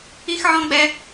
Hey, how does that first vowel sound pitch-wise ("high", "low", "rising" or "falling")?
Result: high